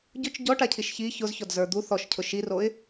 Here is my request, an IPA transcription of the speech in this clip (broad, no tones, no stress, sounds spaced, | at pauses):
ɟ ʊ t͡ʃ ɟ ɔ ʈ a cʰ i ʃ ç i ç ʊ z ç ɔ d z ə˞ d̪ u θ ɔ ʃ cʰ ʊ ʃ i r o ɪ̯